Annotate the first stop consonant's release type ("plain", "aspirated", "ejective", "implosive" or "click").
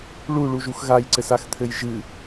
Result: click